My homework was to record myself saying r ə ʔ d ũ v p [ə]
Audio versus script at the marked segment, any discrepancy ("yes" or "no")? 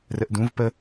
no